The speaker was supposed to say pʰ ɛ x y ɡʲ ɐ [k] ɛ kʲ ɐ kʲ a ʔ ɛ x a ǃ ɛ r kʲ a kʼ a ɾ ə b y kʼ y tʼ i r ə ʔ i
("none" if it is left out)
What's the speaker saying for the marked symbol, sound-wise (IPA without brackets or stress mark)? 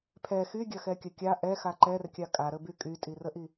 x